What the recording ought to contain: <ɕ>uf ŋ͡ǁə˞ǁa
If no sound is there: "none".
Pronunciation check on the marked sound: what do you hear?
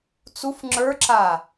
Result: t͡s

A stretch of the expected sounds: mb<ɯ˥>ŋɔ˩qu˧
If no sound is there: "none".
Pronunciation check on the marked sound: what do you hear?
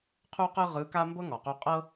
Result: ɤ˥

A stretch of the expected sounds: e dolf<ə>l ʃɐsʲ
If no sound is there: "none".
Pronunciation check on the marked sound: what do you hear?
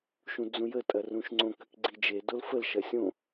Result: ə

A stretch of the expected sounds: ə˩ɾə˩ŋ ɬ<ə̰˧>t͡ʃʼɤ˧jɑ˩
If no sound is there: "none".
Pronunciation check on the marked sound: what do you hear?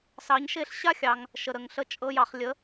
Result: ə˧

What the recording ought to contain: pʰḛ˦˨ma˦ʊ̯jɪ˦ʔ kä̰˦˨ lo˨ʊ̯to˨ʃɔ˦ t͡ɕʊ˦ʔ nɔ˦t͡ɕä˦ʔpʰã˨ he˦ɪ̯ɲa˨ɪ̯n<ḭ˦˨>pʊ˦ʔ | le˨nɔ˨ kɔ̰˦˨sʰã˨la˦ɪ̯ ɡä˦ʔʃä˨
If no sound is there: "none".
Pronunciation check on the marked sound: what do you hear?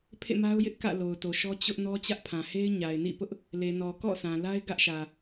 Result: ḭ˦˨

